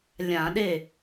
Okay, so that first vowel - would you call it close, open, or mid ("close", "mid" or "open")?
open